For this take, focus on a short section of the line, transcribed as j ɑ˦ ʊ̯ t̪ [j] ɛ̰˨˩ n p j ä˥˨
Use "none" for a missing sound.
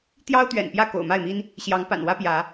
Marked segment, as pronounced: ɥ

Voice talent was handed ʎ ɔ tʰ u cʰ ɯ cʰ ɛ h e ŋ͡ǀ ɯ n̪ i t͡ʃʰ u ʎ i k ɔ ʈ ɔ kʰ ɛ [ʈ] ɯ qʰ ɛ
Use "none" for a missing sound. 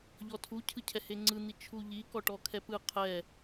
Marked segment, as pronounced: p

